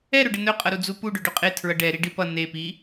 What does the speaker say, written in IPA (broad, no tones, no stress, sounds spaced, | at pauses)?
ɛ ɾ ɵ ɖ ə n ɵ qʼ ʌ ɾ u d͡z u p u ɖ ɵ ɖ ɵ qʼ e tʰ ɹ ʌ ɖ ɛ ɾ i ɖ i p ʌ n e p i